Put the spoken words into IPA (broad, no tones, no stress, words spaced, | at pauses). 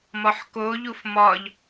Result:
mɒħkoʎuf mɒʎ